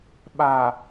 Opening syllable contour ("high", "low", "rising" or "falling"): low